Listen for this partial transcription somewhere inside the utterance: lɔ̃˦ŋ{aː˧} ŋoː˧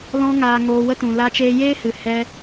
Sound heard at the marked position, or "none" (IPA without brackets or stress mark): aː˧